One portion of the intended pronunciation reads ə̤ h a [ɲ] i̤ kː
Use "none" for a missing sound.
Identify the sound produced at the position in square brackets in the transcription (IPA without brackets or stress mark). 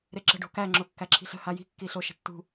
j